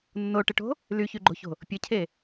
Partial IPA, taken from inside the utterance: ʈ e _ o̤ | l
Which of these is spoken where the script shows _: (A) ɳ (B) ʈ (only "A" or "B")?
B